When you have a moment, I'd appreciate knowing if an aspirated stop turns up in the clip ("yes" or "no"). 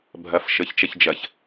no